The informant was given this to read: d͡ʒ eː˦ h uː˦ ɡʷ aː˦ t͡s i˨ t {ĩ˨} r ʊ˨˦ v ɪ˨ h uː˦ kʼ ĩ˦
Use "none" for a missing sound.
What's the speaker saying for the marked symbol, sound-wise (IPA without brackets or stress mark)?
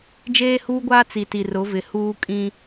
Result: i˨